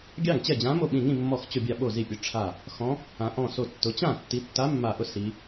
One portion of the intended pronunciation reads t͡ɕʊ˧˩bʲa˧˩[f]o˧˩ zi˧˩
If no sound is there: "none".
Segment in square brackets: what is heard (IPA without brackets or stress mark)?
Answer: ɓ